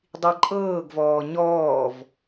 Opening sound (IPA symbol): dˤ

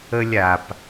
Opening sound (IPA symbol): ə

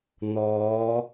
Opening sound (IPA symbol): n̪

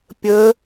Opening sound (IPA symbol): pʲ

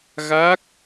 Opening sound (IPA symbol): ɣ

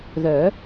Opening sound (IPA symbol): ð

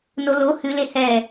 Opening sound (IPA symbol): n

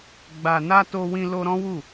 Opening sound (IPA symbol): ɡ͡b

